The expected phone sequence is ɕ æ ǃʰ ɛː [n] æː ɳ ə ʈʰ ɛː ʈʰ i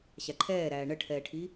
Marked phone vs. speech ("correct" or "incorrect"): incorrect